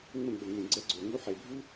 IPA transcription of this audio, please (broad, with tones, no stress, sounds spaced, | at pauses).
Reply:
ŋ͡m ə̃˦˨ ɡ͡b ə˨ ŋ ẽ˨ ɡ͡ǀ ɛ˧ ɡ͡ǀ o˨ ŋ u˧ ħ e˨ bʱ u˦